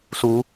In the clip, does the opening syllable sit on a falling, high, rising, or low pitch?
rising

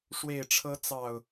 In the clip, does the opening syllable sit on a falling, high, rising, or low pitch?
low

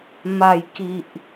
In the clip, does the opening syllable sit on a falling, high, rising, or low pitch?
low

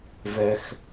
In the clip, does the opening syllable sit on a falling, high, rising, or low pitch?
low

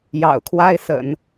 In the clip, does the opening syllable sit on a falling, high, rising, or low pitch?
low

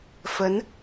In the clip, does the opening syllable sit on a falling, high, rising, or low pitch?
rising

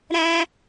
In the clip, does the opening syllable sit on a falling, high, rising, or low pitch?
high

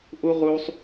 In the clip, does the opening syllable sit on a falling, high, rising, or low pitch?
high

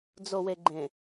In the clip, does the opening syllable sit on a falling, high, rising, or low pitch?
low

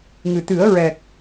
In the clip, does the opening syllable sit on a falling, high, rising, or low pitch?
low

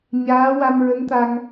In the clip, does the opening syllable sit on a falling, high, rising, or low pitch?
rising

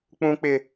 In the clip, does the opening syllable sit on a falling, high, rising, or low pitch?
high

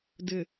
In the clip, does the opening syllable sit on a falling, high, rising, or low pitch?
low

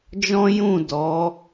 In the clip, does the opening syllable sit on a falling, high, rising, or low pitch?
high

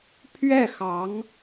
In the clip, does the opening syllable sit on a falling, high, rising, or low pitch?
falling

